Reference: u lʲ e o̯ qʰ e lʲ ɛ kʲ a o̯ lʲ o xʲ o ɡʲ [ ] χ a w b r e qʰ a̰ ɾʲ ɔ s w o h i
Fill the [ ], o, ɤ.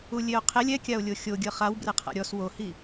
ɤ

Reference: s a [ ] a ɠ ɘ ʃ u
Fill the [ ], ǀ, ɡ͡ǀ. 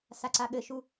ǀ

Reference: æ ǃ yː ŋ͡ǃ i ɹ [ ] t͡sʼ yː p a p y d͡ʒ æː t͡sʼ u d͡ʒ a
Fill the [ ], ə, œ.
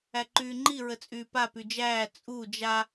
ə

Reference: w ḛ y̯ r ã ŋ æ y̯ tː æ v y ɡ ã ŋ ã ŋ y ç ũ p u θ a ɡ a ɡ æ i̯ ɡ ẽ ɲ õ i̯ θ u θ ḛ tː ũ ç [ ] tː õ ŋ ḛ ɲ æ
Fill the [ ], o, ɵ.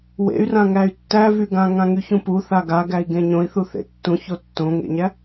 o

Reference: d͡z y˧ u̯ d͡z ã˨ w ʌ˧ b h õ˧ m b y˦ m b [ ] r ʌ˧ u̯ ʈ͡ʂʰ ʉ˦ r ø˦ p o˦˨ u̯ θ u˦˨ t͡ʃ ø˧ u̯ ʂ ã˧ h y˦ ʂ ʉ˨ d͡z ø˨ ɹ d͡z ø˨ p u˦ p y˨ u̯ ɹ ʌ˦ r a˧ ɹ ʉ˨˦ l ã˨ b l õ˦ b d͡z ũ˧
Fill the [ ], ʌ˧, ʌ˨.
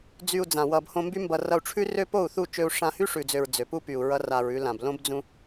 ʌ˧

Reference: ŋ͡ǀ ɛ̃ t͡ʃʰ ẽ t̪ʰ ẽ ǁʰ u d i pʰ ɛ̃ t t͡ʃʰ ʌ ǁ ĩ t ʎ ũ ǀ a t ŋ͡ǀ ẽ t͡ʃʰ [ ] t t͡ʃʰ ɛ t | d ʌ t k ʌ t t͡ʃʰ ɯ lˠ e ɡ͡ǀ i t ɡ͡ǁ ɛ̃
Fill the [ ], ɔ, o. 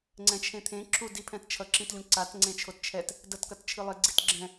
o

